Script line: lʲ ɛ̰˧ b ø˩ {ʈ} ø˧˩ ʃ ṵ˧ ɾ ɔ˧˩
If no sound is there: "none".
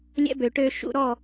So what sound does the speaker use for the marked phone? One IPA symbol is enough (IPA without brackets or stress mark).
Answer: ʈ